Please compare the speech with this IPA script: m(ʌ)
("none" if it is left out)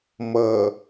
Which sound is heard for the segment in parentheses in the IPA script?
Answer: ʌ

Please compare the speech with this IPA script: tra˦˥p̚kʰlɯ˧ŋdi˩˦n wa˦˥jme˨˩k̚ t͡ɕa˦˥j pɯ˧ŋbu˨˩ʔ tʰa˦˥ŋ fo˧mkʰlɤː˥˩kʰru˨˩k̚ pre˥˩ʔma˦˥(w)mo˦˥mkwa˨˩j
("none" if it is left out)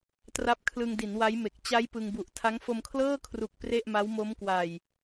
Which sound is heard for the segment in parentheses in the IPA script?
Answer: w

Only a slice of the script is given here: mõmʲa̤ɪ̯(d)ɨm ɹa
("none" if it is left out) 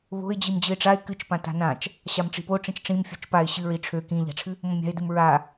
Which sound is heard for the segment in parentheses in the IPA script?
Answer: d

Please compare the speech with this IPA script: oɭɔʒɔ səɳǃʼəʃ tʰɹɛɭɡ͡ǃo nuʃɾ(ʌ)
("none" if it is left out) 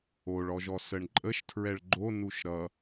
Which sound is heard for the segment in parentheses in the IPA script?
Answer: ʌ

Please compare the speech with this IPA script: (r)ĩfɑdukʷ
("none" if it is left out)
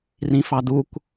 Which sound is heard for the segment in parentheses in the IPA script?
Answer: r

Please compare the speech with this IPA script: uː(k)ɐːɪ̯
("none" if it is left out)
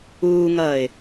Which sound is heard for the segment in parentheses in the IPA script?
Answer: ŋ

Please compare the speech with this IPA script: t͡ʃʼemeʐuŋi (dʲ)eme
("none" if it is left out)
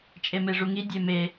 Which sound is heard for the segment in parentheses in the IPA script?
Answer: dʲ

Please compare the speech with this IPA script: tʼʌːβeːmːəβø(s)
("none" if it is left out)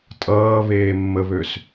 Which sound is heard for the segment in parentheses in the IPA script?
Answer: s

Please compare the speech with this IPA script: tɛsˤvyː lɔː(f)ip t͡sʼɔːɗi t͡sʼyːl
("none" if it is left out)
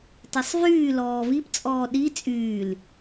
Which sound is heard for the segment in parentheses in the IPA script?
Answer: v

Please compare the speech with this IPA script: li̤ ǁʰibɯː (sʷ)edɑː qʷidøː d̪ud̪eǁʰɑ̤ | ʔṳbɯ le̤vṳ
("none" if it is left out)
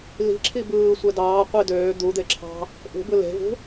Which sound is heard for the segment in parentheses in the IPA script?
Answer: sʷ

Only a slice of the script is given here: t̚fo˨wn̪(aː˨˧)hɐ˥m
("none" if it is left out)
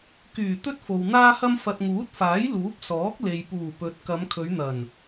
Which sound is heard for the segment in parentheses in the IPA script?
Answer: aː˥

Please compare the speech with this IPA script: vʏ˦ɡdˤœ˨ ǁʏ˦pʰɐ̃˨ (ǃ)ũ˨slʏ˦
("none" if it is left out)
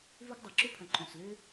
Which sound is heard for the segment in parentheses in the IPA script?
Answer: ǃ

